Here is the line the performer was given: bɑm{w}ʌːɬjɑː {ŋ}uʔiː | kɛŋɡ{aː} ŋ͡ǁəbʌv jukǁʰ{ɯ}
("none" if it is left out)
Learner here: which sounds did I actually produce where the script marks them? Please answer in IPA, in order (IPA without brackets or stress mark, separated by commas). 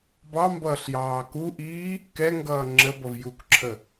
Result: b, k, ʌː, ə